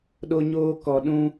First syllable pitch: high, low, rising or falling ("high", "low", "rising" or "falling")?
high